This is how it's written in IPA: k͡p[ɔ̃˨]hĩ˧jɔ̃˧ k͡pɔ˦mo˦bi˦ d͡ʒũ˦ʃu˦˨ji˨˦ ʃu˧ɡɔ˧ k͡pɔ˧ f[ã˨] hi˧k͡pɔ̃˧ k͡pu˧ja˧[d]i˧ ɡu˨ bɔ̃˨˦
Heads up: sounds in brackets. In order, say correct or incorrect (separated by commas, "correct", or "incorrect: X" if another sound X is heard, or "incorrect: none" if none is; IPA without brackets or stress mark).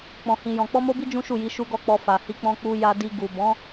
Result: incorrect: ɔ̃˧, incorrect: a˨, correct